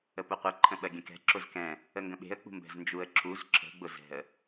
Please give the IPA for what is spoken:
ə p ʊ qʷ ɛ ǃʰ ə̃ ɓ ɜ ɡʲ ə̃ k ɛ̤ ǁ ʊ z k ɛ̃ | ə ŋ ɡ ə̃ ɓ e̤ ə̯ k͡p ṳ m b ɛ̤ z n d͡ʒ u ə̯ ǁ u z ǁ ə̤ ɡ͡b ʊ z ɛ̤ ə̯

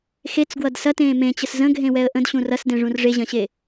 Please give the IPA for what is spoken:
x e t͡s ɡ w ʌ d s ɐ t ẽː m ẽ t͡ɕ ə s z ə̃ ɡʱ ẽ w ɛ ə̯ ʔ ə̃ d ɕ ũ r ɐ s d ẽ ʐ ũ r ʐ e ʑ ɐ̃ ɕ e

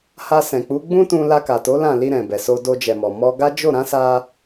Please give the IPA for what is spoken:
h a˧ s ɛ̃˨ k͡p u˨˦ ɡ͡b ũ˦ t ũ˧ l a˧ k a˨ t o˨˦ l ã˦˨ l i˧ ɾ ɛ̃˨ b ɛ˨ s o˧ d o˧ d͡ʒ ɛ˨ m ɔ˨ m ɔ˧ ɡ a˦ d͡ʒ o˦˨ ɾ ã˨˦ s a˧

